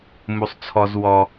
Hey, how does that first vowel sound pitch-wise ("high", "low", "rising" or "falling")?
low